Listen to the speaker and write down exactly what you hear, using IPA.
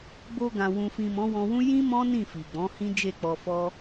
b o˧ ɡ ã˨ w ũ˨ f ĩ˨ m ɔ̃˨˦ w ɔ̃˧ w ũ˦ j ĩ˦ m ɔ̃˦ n ĩ˦˨ f i˨ ɡ͡b ɔ̃˨˦ h ĩ˦ d͡ʒ e˦˨ k͡p ɔ˧ f ɔ˧

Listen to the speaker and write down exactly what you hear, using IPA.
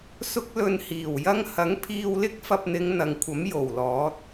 s ʊ˥ k̚ l ɵ˧ n h iː˨˩ w j ɐ˥ ŋ h ɐ˨˥ ŋ pʰ iː˧ w l ɪ˥ k̚ f ɐ˧ p̚ n̪ ɪ˨˧ ŋ n̪ ɐ˨ ŋ kʷʰ ɐ˨˥ m j o˨˩ w l ɔː˨˥ t̚

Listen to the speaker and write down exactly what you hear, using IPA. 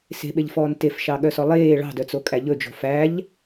s e̤ ɓ e ʎ f ɔː n t e f ʃ ɑ ɠ œ s ɔ lˠ eː ɭ ɑ̤ d œ t͡s o kʼ æ ʎ ɵ d͡ʒ o̤ f æ ʎ

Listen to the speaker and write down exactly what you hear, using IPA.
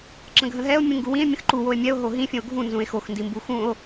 ǁ ə̃ ɡʱ ə̃ ɦ ɛ o̯ mʲ ũ ŋ ɡ u w ĩ e̯ mʲ ə̃ x ǃ u w o e̯ mʲ ɛ o̯ ɦ o ɦ ĩ fʲ ə̃ o̯ ɡʱ ũ n z ũ e̯ x o x n d i m b u x ũ o̯

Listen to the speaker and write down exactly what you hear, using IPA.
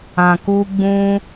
ã˨ k u˧ ɡ͡b ũ˧

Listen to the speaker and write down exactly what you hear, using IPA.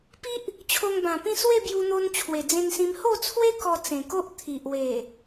p i˦ ʔ | t͡ɕʰ o˧ ŋ b ã˨˩ p ĩ˥˧ s w e˥˧ b j u˧ n̪ o˧ n t͡ɕʰ w e˨˩ d͡z ẽ˧ n s ĩ˧ m h o˥˧ t͡sʰ w e˦ k ɔ˧ t͡s ẽ˨˩ k o˦ ʔ t̪ʰ i˨ ʔ w e˨˩

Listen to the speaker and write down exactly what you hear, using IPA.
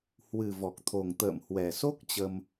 h w ɨ˨˩ v ɔ˨˩ k̚ t̪ʰ o˨˩ ŋ t̪ ə̰ː˧˨ m h w ɛ˨˩ s o˦˥ k̚ t͡ɕ ə˧ m

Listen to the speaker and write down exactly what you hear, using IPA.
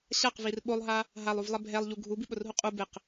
ɕ a q v i r ɓ o lˠ ɦ a | ɦ a lˠ u v lˠ ɛ bʱ ɛ lˠ ʎ u ɡʱ u b i ɓ ʊ r ɦ u qʼ u b ɪ q

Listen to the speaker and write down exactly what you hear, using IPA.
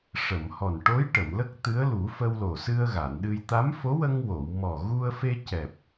ʂ ə˨˩˨ m h ɔ˨˩ n ʈ o˧˥ j ʈ ə˨˩˨ m l ə˦˥ k̚ t̪ ɨ˧˥ ə̯ l u˨˩˦ f ə˧ w l o˨˩ s ɨ˧ ə̯ ɣ a˨˩˨ n ɗ ɨ˧ j t̪ a˧˥ m f o˧˥ w ə˧ ŋ w o˨˩˨ w m ɔ˨˩ ɣ u˧ ə̯ f e˧ c ɛ˨˩ p̚

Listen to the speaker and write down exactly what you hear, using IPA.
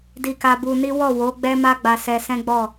d i˧ k a˧ b u˧ n i˦ w ɔ˦˨ w o˨˦ ɡ͡b ɛ˦ m a˦ ɡ͡b a˧ s ɛ˧ s ɛ̃˦ ɡ͡b ɔ˦˨

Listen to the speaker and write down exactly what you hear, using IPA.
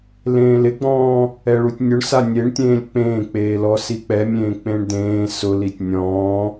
l ẽː l ɪ ɡ͡b ɔ̃ː | ɛ ɭ u tʲ nʲ ʊ ɳ s a nʲ e ɳ tʲ ẽː lʲ k͡p ẽː k͡p eː l ɔ s i k͡p ɛ mʲ ẽː k͡p ẽ ɳ d ẽː s ʊ l i tʲ nʲ ɔ̃ː

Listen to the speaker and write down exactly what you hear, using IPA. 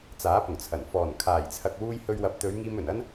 t͡s aː˨˥ p ʊ˨˩ ŋ t͡sʰ ɐ˨˩ n f ɔː˨˩ n kʰ aː˨˩ j t͡sʰ ɐ˨ k̚ w uː˧ j h ɵ˧ ɥ w ɐ˨˥ p̚ t̪ ɵ˨˧ ɥ ŋ iː˧ m ɵ˨˩ n ɐ˥ n

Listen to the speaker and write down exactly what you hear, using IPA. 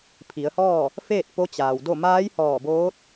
pʰ i˩˧ ə̯ h ɔː˥˨ | f eː˥˨ t̚ p o˧˥ t͡ɕ aː˩ w d o˥˨ m aː˧˥ j h ɔː˧˩ b oː˧˥ t̚

